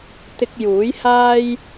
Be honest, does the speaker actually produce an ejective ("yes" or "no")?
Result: no